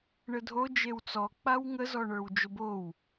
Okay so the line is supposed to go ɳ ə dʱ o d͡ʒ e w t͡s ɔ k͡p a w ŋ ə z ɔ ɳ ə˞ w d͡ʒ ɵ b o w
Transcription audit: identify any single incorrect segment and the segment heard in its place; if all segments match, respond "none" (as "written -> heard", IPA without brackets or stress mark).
ɵ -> o